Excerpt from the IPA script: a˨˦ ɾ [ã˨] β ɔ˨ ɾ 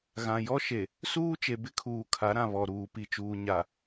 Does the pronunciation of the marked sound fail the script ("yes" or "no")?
no